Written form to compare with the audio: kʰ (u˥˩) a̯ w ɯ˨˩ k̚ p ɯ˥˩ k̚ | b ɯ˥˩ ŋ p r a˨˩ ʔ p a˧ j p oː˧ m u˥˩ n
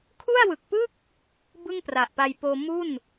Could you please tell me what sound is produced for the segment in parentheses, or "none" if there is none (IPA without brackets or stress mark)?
u˥˩